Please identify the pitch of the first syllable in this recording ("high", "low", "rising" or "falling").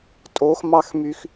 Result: rising